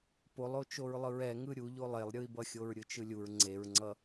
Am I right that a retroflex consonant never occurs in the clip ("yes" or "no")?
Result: yes